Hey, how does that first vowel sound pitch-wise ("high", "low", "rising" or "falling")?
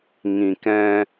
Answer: low